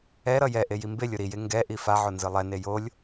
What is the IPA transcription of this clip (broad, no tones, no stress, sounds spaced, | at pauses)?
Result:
ɛ ɾ ʌ j ɛ ʔ e j i m b e lʲ o ɾ i j e ŋ ɡ ɛ ʔ i f a ʕ o n z ɯ lˠ ɛ n e j o lʲ